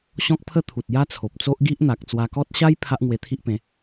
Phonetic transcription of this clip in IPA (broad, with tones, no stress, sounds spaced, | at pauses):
ɕ ɔ̃˦ k̚ pʰ ə˥˧ t̪ʰ u˨ t̚ j a˦ t͡sʰ o˨ p̚ t͡s o˦ ʔ ɡ i˦ ʔ n̪ a˨ k̚ t͡s w a˧ k ɔ˦ t̚ ɕ a˦ j pʰ a˦ ʔ ŋ w e˧ t̪ʰ i˦ ʔ p ẽ˨˦